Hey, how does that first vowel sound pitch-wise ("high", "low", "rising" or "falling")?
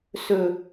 low